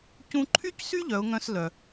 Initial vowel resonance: nasal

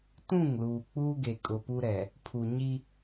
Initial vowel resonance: nasal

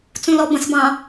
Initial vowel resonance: nasal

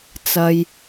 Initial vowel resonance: oral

